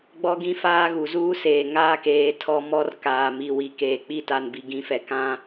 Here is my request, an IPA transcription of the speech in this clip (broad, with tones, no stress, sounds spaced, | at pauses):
ɡ͡b ɔ˦ ɡ ĩ˦ f aː˦ ɣ u˨ z uː˦ s eː˨ ŋ aː˦ k eː˨ tʰ ɔ˦ m ɔ˦ r k aː˨ m i˨ w i˨ k eː˨ k͡p i˦ t a˨ n b i˨ ɡ ĩ˨˦ f ɛ˨ k ã˦